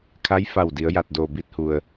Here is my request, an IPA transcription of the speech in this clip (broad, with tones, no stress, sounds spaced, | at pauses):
kʰ a˧˥ j f a˧˩ w d i˩˧ ə̯ j a˧˩ t̚ d oː˧˩ b i˧ t̚ h u˩ ə̯